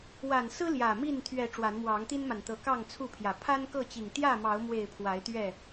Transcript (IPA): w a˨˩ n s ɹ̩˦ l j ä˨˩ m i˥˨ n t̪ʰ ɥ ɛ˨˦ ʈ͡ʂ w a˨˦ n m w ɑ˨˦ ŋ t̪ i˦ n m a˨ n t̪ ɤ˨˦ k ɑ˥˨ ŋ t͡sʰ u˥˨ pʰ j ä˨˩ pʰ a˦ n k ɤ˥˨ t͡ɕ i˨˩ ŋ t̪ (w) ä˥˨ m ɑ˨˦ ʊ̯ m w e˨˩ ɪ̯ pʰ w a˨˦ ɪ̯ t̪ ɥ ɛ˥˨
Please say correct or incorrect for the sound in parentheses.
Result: incorrect: j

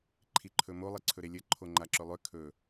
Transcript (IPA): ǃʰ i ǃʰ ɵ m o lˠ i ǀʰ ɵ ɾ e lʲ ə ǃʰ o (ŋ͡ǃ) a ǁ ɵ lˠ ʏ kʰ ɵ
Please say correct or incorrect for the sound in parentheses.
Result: correct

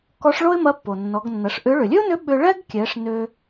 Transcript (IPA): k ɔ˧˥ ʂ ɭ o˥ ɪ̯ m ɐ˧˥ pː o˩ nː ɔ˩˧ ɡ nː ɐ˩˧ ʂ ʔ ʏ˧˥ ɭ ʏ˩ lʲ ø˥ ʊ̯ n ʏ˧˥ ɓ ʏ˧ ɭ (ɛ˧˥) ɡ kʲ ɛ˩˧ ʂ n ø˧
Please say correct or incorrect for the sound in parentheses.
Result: incorrect: ɛ˥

